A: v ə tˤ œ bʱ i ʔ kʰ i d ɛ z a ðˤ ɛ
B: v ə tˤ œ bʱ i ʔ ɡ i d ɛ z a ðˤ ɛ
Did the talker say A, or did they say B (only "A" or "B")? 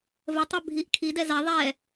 A